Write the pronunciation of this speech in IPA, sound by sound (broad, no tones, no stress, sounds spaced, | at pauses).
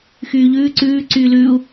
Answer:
x yː ʎ ʉː ǀ ʉː ǀ yː l ʉː u̯